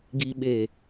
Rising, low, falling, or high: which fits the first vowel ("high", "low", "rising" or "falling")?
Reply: low